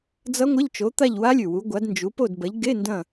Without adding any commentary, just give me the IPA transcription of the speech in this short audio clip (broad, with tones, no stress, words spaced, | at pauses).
d͡zʌ˦˥ŋʷɐ˧˥˧ʎ t͡ʃo˨˦t̪a˦˨ʎ wa˦˥lʲʉ˨˩wu˨˦ɡʷa˨˦d nd͡ʒu˨˦ po˦˨dbɐ˨˦ʎ ɡe˧˥˧ ndɐ̃˦˨